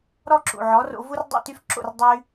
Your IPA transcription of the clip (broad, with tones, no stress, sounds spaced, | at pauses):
ɾ ɔ˥ ǁ ṵ˩ ʕ ɔ˩˥ r o̰˧ v u˥ r dˤ ḭ˥˩ t y˥ f ǁ o̰˥˩ r dˤ y˧